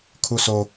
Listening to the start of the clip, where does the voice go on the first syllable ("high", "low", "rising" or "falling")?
high